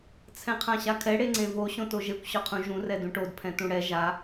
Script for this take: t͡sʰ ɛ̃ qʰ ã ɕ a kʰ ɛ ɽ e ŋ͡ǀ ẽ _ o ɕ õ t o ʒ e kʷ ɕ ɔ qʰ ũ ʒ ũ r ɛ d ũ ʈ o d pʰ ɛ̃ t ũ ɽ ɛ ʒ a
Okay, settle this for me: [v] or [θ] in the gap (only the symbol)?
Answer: v